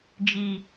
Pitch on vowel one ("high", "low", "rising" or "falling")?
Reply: low